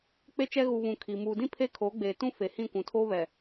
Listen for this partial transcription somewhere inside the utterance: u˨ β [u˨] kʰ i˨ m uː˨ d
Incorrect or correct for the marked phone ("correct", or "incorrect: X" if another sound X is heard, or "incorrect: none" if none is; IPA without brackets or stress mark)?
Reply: incorrect: ũ˨